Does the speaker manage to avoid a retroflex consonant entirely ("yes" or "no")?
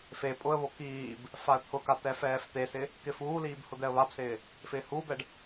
no